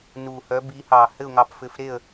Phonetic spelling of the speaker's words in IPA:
nu˨˩hœ˨˥ bi˨˥hɑ˨˩ hɘ˥˨ʊ̯ŋɑ˨˥p fɘ˨˥fɾe˥˨ə̯

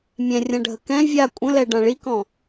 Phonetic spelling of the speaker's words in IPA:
mʲɛ̃rʲãɖʱə kɛ̃ vʲa kʷʼə̃lɛɖã ɭikɔ̃

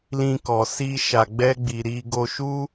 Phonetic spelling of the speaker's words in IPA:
lĩ˧kɔ˨si˧ ʃa˨ɡ͡bɛ˧ɡ͡bi˨ ɾi˧ɡo˧ʃu˦

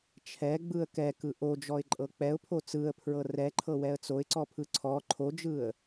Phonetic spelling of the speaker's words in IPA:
t͡ʃʰɛɡ͡bɯə̯ kɛkɯ ʔod͡ʒɔɪ̯ǃʼɤ k͡pɛʊ̯pʰo t͡sɯə̯pʰɹɤ rɛǃʰɤwɛə̯ t͡soɪ̯ǀɔpʰɯ ǀʰɔ ǃʰod͡ʒɯə̯

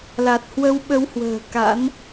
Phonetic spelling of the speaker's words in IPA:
la˨˩t̚hwə˧w ɓə˨˦whwə̤ː˨˩ ka̰˧˥n

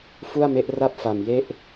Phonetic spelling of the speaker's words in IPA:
fu˥˩a̯me˦˥ʔra˥˩p̚ fa˨˩mje˥˩ʔ

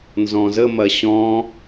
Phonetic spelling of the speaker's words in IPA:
nzɔ̃zə mɐɕɔ̃

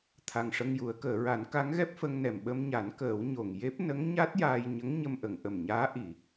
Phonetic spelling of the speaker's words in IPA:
t̪ʰa˨˩ŋʂə˧ŋju˨˩˦ə̯ kəː˨˩˨ɹa˨˩˦n ka˧˥ŋɣɛ˦˥p̚fə˧ŋnɛ˨˩m ɓə˧m ɲa˨˩˦nkəː˨˩˦w ɲo˨˩ŋ je˦˥p̚ nə˧˥ŋɲa˦˥t̚jaː˧jɲə˧˥ŋ ɲə˧mʔə˨˩˨ŋʔə˨˩mɲaː˧˥ ʔi˨˩˨

